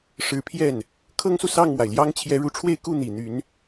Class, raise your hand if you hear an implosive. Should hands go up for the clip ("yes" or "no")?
no